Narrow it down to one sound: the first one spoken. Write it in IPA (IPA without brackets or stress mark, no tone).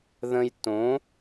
ð